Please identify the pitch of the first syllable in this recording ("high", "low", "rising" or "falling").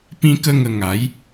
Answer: high